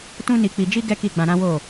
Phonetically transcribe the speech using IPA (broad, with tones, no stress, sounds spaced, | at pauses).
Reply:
t ũ˦ n i˧ k͡p i˧ d͡ʒ i˦ ɡ ɛ˦ k i˦˨ ɡ͡b ã˧ ɾ ã˦ w o˦˨